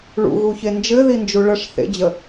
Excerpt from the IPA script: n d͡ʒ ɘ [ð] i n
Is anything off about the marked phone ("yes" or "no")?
no